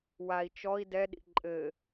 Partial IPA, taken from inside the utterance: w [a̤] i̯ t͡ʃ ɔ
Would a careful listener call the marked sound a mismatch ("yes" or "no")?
yes